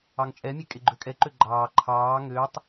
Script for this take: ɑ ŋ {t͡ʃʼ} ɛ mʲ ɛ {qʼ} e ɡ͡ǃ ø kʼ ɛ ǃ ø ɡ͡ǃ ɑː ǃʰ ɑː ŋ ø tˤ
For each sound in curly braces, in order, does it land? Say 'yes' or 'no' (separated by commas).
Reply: yes, no